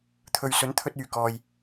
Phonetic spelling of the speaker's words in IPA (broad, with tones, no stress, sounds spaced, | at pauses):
t̪ʰ ɵ˨ ɥ s ɵ˨˥ n t̪ʰ ɵ˥ t̚ yː˨˩ k ɔː˨ j